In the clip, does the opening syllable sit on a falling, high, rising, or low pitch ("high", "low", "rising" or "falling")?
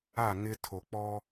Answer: falling